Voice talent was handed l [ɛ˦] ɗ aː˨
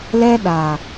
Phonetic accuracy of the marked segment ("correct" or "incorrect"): correct